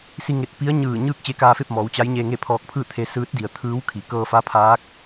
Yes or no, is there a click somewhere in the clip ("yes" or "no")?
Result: no